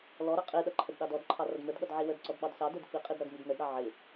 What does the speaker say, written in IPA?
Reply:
lɔɾʌ qʼiɗʌ ǃʰədɗɑdɔdǃʰɑ rʌdmə˞dɠʌd ʕiwədǀɔd ɓɑdsɑdə˞d fiqʼid ɾʌdmidnədɾɑ ʕɪ

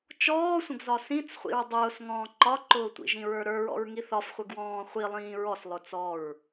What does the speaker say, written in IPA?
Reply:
t͡ʃɔːsʷə̃ɡzɒ sĩt͡sχʷḭɹ dˤʊːsŋɔ̃ː ǃɒǃʊːtʷḭ ʒĩɹə˞ɾə˞ɹɔ̰ɹ ŋiθɒfχʷəɡwɔ̃ː χʷi lˠĩːɹɔs lˠʊt͡sɔɹ

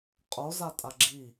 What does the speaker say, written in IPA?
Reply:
qʼo zatʼaɡ͡ǁi

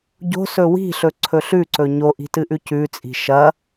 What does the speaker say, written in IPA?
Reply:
ɟo̤sɵ wi̤ɬɵ ǀʰɵɬʉǀɵ ɲoʔi̤ tɨʔʉcʉt͡sʼi̤ ʃɐ

